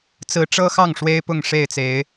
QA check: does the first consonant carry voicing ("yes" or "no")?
no